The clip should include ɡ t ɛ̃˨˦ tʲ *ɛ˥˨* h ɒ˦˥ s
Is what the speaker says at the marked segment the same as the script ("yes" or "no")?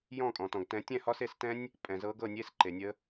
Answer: no